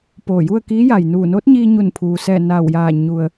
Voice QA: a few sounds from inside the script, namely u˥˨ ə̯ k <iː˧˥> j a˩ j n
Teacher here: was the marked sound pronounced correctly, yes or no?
yes